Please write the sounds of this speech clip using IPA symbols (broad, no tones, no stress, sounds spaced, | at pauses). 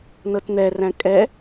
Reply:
n ɤ t n̪ ɛ r æ̃ kʼ ɛ